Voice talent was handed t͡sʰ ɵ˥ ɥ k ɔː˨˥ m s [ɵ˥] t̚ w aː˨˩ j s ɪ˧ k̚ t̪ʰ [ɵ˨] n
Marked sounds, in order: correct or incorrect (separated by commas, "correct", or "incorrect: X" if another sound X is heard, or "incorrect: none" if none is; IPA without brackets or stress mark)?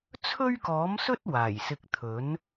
correct, incorrect: ɵ˨˥